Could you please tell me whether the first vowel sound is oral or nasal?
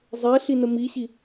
oral